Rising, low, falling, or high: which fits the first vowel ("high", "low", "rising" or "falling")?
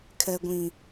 low